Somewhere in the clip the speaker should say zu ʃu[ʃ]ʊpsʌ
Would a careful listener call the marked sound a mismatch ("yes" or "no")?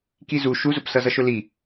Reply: yes